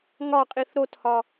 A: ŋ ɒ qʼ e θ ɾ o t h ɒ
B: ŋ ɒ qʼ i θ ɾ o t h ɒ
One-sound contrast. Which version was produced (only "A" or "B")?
B